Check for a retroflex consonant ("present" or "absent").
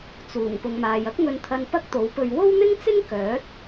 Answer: absent